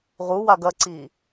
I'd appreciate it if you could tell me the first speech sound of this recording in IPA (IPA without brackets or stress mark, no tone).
ʁ